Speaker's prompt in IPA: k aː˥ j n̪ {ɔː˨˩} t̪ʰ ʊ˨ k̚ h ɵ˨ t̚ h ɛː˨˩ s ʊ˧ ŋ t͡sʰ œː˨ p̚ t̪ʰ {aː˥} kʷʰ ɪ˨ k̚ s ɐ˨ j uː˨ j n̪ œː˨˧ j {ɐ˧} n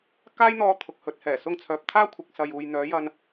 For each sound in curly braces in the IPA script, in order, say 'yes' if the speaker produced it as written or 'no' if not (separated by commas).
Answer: no, yes, yes